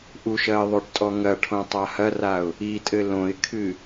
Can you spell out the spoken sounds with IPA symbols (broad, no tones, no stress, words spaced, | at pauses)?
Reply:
ʔuʃɐɪ̯ ðˤoʈtʼɔŋɐʈʰõ tˤahɐraʊ̯ | itʼɘ lõɪ̯kʰɨ